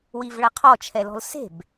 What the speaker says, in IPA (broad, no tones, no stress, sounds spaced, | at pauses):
w i v ɭ ɐ qʰ ɔ t͡ʃʰ ɛ l ɔ̤ l s e̤ b